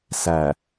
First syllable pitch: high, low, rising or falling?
low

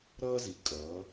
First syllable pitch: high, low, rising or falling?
high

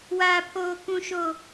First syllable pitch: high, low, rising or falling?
high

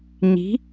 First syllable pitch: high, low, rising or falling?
rising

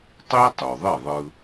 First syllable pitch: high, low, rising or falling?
high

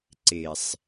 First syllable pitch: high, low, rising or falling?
low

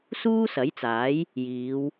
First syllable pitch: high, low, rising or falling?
high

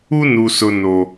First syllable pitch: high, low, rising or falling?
high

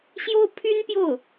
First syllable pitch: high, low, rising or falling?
high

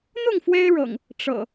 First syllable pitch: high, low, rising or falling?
falling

